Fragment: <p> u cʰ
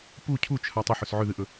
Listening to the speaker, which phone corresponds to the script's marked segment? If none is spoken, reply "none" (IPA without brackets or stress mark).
p